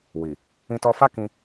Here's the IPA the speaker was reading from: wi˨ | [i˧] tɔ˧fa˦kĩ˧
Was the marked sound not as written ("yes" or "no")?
yes